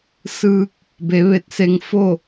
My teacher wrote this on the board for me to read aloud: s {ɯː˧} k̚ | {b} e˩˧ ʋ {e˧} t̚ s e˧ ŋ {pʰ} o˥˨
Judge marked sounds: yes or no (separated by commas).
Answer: yes, yes, yes, no